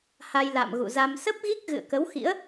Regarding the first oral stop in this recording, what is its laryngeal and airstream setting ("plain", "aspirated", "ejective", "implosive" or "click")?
plain